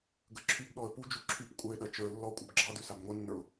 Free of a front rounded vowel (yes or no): no